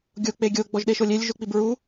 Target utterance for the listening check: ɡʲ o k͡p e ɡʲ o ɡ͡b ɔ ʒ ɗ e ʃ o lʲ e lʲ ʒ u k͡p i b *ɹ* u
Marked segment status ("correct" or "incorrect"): correct